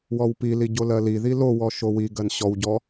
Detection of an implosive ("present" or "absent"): absent